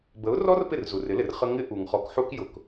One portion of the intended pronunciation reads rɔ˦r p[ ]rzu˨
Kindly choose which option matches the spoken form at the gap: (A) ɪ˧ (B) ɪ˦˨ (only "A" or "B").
B